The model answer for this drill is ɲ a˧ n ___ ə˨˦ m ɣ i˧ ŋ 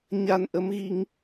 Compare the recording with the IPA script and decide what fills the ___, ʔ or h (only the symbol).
ʔ